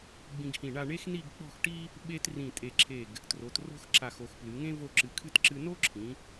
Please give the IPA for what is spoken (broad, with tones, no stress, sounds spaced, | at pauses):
ɡ͡b ĩ˧ ɡ h ĩ˧˩ ɳ a˥˧ ɳ e˥ x n i˥˧ ɡ k͡p ɔ̤˥˧ x ʈ i˥ | ɓ e˥ t r ĩ˧˩ tʼ e˧˩ ǁʰ e˧˩ ɡ | t r o˩˧ t r o̤˥ x ǁ a˧˩ x o˧˩ x p l ɨ˩˧ ŋ ẽ˥ v o˥˧ ǁ ɨ˧ kʰ ɨ˥ t ǁ ɨ˧ n o˥ ǁʰ ĩ˩˧